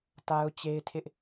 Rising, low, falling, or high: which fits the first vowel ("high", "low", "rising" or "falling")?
high